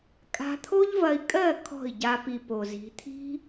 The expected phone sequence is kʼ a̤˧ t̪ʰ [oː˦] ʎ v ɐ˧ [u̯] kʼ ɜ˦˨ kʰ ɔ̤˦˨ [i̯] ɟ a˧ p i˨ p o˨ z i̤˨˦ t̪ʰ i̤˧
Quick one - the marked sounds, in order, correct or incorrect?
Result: incorrect, incorrect, correct

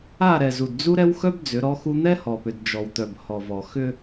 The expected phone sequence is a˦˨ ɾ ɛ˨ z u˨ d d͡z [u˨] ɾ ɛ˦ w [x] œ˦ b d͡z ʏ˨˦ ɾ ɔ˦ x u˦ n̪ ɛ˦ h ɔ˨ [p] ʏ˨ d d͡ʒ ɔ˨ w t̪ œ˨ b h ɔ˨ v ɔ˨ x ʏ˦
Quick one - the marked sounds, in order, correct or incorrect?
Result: incorrect, correct, correct

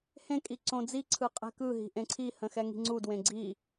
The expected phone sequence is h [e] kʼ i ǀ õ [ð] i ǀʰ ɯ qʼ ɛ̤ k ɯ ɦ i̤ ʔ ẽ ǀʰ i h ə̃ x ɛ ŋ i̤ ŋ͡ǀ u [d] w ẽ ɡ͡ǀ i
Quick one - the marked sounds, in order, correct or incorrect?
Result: incorrect, incorrect, correct

